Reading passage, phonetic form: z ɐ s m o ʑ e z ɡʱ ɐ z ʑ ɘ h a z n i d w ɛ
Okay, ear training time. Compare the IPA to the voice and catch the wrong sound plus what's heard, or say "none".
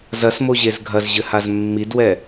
n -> mː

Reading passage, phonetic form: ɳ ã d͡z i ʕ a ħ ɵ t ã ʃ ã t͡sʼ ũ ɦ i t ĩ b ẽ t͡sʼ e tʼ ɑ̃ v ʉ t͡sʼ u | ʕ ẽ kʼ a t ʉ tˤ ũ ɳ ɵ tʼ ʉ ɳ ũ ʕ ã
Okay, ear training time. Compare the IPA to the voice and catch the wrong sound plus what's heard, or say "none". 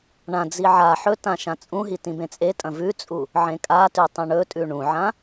ɑ̃ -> ɐ̃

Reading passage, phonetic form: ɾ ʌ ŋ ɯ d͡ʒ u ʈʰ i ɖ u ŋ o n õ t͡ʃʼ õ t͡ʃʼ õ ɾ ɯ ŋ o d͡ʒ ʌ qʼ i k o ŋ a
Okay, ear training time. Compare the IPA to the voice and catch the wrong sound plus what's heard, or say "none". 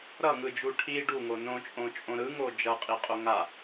k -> qʼ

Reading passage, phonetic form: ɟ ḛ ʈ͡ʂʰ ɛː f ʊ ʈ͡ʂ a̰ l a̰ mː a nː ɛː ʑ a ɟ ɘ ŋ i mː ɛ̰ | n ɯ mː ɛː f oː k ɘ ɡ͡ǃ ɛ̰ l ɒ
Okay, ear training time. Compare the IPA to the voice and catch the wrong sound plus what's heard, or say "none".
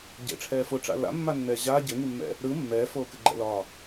n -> ɾ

